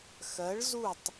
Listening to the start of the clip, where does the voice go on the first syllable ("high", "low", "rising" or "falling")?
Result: rising